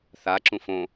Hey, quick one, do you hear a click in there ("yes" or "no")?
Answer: yes